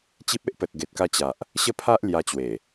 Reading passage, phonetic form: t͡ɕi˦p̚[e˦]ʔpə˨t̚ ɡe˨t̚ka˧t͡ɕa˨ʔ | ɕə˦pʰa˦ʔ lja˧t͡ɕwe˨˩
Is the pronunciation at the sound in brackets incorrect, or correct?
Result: correct